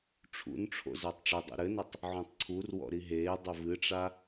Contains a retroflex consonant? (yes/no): yes